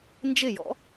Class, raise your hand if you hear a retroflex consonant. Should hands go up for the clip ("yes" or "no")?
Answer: no